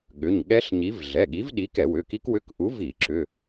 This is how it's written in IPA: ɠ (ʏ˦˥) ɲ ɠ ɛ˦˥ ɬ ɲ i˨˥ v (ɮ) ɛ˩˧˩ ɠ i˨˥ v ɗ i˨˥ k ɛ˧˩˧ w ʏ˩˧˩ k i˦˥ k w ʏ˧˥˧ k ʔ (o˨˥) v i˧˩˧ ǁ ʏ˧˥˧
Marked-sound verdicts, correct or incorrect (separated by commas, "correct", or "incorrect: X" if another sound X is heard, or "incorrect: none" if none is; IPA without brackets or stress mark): incorrect: ʏ˩˧˩, correct, incorrect: u˨˥